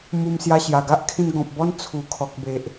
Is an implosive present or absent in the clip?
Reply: absent